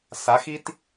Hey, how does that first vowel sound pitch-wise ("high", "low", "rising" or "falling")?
rising